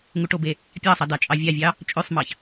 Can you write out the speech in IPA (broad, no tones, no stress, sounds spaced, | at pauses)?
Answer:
ŋ u ʈ o b e | pʲ ɑ sˤ ɑ d ɑ t͡ʃʼ ɑ vʲ ɑ vʲ ɑ | t͡ʃʼ ø sˤ m ɑ ç